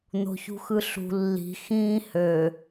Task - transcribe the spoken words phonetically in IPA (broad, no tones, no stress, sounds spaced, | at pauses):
n̪ o̤ ç ṳ x ɯ ɬ ṳ lː i̤ x ĩː h ø